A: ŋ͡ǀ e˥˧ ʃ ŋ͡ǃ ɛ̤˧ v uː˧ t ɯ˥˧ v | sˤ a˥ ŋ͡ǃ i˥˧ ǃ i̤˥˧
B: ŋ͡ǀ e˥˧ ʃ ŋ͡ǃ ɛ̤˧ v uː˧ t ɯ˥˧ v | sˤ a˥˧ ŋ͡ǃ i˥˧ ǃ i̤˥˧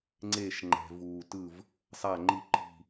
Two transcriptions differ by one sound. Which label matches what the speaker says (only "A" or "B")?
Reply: B